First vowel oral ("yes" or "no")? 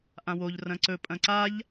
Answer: no